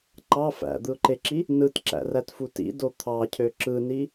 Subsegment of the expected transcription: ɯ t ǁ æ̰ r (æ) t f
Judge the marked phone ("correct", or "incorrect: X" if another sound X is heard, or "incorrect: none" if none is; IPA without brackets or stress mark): correct